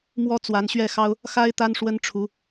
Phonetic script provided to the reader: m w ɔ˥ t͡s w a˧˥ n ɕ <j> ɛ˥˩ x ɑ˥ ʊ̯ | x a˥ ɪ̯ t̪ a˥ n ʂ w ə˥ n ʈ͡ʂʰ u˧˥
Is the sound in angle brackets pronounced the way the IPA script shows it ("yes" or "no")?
no